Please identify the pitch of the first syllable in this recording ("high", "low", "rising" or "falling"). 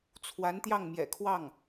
rising